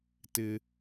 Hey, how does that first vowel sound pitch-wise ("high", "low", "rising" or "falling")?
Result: high